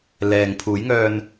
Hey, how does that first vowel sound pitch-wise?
low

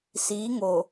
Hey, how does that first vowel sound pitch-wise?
rising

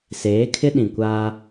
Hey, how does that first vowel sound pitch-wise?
rising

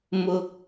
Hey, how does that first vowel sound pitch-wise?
low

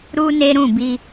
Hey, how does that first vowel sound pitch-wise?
high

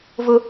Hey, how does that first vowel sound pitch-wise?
high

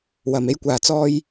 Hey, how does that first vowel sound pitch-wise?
low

